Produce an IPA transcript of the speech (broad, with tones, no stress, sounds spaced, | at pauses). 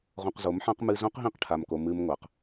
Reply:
ʁ õ˧ q z o˨˦ m ħ ã˦ q m ɨ˧ z õ˦ q ɦ ĩ˦˨ q ʈʰ a˨ m k o˨ m ɨ˧ m ŋʷ a˨ q